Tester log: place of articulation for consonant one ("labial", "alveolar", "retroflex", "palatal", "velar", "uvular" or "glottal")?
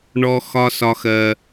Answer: retroflex